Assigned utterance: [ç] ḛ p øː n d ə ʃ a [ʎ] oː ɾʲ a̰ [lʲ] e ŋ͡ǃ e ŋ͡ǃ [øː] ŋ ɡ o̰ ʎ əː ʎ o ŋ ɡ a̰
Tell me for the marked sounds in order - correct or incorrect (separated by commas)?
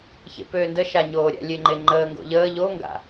correct, incorrect, correct, incorrect